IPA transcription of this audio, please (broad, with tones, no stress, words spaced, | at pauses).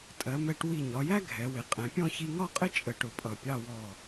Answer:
tʼɜ˩˧ mɛ˧ʈ wi˧˩ɲɒ˩˧jæ˥ ɡʱɛ˩˧wɪ˩˧ qʼɛ̃˩˧pʲɔ̃˥˧ çi˧ŋɒ˥˧qʼɪ˥ t͡ʃʼə˧˩ʈʊ˧˩pʼʌ˧˩pʲɑ˥˧ wɔ˧˩